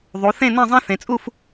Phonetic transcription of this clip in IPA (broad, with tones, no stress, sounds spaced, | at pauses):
ðˤ u˩˧ θ ẽ˥˧ n ɛ̃˥˧ zˤ ɛ̃˥ θ ẽ˩˧ t͡sʼ u˥˧ f